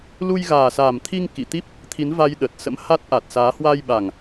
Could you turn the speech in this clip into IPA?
lu˧jɣaː˨˩sa˨˩mt̪ʰi˧ŋ kḭ˧˨t̪i˦˥p̚ | t̪ʰi˨˦nva˧j ɗə˨˩t̚sə̰˧˥m ha˦˥t̚ʔa˨˩t̚saː˨˦ hwa˧jɓa˨˩ŋ

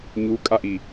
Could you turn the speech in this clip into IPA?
ɲukʼaʔi

